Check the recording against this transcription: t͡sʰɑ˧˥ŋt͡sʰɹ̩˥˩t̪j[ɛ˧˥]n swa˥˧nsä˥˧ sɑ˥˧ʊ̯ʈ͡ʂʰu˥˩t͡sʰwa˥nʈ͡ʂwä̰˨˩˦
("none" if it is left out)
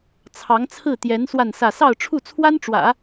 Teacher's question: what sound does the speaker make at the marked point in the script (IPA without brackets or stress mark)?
ɛ˧˥